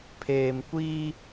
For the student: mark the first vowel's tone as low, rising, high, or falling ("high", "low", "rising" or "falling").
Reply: low